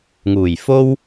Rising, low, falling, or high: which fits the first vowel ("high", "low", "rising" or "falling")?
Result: low